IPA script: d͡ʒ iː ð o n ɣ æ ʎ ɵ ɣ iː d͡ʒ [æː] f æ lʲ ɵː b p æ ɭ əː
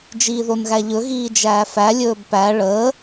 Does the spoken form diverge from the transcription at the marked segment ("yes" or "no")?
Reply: no